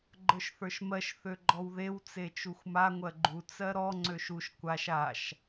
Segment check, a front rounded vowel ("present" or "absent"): present